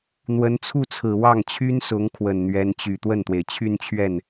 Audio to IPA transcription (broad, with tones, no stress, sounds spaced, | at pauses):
n̪ w ə˧˥ n t͡sʰ u˥˩ t͡sʰ ɹ̩˨˩ w ɑ˥˩ ŋ t͡ɕʰ y˥ n s ʊ˧˥ ŋ kʰ w ə˨˩ n n̪ ɥ ɛ˧˥ n t͡ɕ y˨˩ t̪ w ə˥˩ n t̪ w e˩ ɪ̯ t͡ɕʰ y˥˧ n t͡ɕʰ ɥ ɛ˥˩ n